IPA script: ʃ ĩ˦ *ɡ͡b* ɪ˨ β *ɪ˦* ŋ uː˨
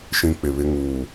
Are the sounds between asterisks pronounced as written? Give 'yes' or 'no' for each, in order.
no, yes

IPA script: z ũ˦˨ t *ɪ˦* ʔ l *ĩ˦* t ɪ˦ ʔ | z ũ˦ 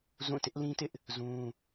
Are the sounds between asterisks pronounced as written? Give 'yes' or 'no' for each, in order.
yes, yes

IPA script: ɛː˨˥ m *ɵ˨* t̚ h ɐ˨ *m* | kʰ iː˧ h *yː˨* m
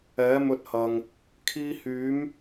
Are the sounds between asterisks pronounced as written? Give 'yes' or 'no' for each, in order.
no, no, no

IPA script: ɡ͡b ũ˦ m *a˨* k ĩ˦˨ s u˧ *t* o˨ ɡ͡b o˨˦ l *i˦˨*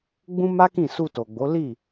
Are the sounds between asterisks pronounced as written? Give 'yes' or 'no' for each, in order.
no, yes, yes

